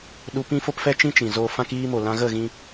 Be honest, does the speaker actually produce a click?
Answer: no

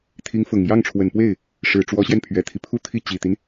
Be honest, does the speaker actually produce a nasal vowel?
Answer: no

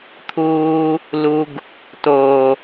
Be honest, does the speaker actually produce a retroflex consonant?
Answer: no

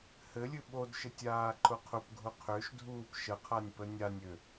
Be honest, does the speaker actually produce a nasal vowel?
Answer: no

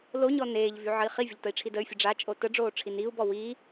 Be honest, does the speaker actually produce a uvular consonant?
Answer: yes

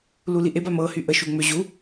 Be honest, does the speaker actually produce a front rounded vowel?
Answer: yes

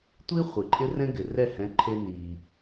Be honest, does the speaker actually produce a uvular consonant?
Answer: yes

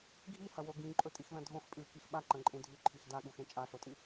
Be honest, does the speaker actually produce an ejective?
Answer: yes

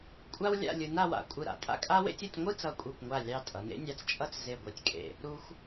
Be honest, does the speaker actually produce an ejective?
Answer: yes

